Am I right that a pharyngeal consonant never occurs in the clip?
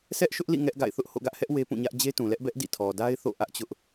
yes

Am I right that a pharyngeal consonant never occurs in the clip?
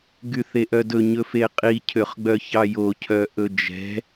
yes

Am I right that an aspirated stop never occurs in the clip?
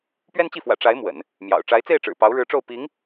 yes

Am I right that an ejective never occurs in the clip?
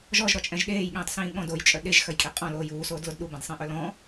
no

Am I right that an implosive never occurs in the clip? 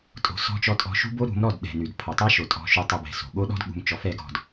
no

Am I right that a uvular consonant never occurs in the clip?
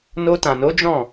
yes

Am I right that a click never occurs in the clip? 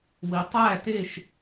yes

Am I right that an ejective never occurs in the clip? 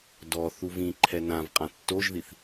no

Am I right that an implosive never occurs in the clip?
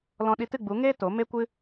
no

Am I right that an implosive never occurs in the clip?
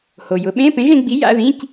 no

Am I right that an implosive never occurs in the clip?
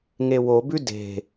yes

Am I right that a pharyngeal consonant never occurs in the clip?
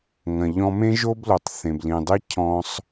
yes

